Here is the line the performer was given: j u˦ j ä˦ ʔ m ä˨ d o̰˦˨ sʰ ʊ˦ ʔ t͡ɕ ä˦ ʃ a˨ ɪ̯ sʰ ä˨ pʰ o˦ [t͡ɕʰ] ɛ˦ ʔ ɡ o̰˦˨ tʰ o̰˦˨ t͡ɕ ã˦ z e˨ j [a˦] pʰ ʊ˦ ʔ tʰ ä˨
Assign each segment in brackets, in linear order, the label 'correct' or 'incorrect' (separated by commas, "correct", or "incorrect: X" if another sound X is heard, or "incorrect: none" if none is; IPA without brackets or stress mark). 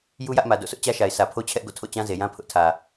correct, incorrect: ã˦